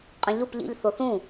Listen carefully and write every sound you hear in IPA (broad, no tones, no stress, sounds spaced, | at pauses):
qʼ ĩ ʎ u p ʎ ḭ ʎ θ o θ ũ